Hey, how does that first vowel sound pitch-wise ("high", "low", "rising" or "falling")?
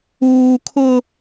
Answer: high